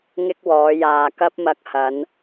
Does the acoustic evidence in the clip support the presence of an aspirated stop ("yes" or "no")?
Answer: no